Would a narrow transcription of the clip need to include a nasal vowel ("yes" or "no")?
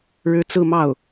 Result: no